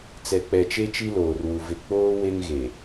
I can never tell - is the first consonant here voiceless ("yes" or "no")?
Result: yes